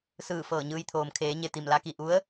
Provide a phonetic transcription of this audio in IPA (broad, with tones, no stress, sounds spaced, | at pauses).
s ɯː˧˩ f ɤː˧˩ ɲ ɯː˧ j t̪ʰ oː˩ m kʰ eː˩˧ ɲ e˩ t̪ i˧˩ m l a˧ k i˧˩ ʔ u˧˥ ə̯